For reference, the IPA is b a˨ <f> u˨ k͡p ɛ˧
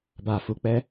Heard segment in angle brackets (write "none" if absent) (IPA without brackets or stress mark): f